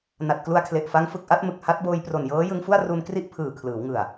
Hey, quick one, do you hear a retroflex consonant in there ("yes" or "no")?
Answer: no